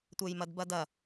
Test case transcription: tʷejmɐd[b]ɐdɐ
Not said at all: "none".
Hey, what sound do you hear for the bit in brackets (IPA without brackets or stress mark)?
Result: b